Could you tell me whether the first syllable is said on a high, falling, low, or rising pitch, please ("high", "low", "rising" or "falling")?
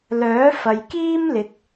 rising